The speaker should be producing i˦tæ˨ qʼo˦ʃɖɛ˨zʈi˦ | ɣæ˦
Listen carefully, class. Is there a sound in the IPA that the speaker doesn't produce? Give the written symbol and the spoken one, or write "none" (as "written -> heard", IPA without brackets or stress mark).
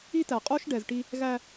none